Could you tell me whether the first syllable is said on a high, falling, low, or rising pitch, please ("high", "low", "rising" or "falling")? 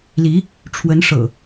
rising